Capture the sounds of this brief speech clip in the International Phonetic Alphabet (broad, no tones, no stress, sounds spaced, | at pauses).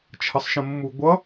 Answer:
t͡ʃʰ ʌ sˤ ʃ ə̃ mː u ɡʷ ʌ